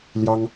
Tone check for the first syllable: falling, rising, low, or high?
high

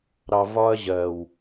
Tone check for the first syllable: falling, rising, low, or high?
low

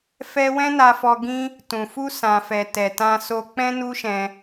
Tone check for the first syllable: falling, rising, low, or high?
high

